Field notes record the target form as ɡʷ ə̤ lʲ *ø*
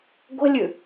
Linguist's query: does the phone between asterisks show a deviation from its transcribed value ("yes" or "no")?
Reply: yes